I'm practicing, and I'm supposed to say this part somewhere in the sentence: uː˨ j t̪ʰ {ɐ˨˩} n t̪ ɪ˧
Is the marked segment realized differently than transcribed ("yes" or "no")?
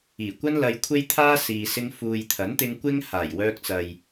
yes